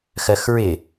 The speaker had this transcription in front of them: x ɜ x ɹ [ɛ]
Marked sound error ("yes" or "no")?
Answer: yes